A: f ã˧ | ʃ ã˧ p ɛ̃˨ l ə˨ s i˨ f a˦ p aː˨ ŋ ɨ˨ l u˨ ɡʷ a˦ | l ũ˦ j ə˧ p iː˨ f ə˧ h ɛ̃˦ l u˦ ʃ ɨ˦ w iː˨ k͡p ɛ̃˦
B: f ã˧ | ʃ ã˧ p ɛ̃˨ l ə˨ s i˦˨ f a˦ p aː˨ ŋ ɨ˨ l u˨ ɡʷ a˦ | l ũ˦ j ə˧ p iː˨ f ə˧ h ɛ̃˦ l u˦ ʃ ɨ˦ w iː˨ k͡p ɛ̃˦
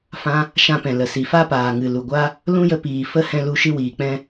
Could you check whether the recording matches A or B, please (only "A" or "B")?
A